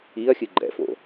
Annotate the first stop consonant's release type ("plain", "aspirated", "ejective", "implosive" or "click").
click